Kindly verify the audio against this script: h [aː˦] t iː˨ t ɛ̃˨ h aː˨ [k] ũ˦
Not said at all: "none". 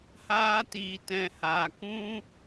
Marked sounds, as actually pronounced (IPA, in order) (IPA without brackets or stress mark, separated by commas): aː˧, k